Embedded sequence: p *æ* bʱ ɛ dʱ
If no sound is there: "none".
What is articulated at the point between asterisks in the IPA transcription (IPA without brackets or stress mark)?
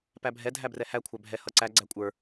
æ